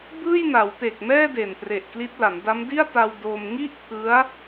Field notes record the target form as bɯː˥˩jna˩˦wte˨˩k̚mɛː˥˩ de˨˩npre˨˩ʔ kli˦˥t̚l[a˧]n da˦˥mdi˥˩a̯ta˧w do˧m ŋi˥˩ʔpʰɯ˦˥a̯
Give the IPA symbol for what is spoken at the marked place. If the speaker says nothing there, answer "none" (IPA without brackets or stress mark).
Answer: a˩˦